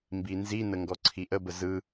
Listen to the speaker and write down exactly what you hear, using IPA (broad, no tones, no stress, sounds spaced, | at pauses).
m b i n z i n ə ŋ ɡ ɔ ǀʰ i ʔ ə b ə z ɯ